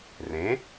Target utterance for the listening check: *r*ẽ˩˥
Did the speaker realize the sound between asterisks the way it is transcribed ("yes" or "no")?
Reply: yes